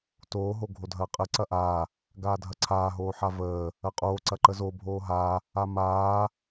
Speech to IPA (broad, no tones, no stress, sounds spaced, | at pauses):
t oː ɦ o ɡʱ o dʱ ɐː qʼ ə ǀ ɐ ʔ a | ɡ aː dʱ ɐ ǀʰ aː ɦ oː ħ a v əː | ɐ qʼ oː ǀ ɐ ǃ ə z o bʱ oː ɦ a | a m aː